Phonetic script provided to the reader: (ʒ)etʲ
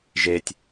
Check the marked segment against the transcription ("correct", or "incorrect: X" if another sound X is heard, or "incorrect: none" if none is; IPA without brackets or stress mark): correct